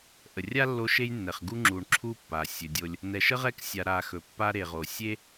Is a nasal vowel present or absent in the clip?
absent